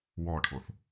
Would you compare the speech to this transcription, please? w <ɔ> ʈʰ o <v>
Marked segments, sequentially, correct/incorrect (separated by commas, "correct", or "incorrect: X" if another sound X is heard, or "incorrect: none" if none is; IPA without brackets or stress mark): correct, incorrect: θ